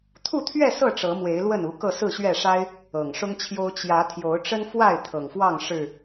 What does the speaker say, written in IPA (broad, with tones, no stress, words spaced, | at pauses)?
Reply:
t̪ʰu˥˨t̪ʰɥɛ˥˨sɤ˥˨ ʈ͡ʂɤ˨˦mwe˨˦ɪ̯ lwə˥˨nu˨˦ kɤ˥˨sɹ̩˥˨ɕɥɛ˥˨ ʂa˦ɪ̯ | ɤ˨˩ŋʂʊ˦ŋt͡ɕʰjo˦ʊ̯ t͡ɕjä˨˦ t̪ʰjo˨˦ʊ̯ʈ͡ʂə˦nfwa˥˨ɪ̯ t̪ʰɤ˨˩ŋfwɑ˥˨ŋ ʂɻ̩˨˩